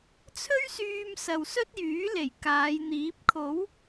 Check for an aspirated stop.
present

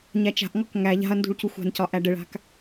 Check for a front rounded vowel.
absent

